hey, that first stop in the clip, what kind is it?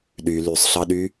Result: implosive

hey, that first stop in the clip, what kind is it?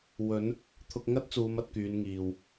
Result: aspirated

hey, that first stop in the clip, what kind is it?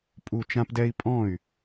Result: ejective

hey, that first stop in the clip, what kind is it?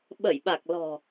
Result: implosive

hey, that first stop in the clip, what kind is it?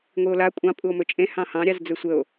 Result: ejective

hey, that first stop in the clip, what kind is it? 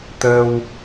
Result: plain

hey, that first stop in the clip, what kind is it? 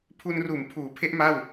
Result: aspirated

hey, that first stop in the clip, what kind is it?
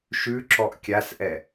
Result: click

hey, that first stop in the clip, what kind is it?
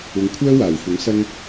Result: aspirated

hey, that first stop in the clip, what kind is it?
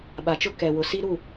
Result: implosive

